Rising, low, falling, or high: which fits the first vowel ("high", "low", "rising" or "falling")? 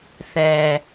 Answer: low